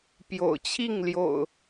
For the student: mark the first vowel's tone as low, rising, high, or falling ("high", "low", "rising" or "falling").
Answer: low